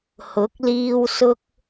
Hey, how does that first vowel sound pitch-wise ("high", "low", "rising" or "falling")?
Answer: rising